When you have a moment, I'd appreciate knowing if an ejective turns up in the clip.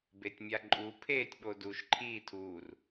yes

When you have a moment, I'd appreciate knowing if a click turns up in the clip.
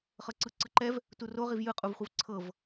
yes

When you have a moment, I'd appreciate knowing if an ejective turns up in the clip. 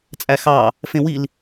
yes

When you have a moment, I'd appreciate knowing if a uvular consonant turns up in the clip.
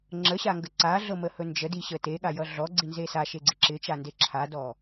no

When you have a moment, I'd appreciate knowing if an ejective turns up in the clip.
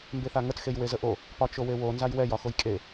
yes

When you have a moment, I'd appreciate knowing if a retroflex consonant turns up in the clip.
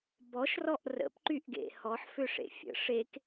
yes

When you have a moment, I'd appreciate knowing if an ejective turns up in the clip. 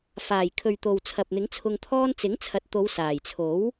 no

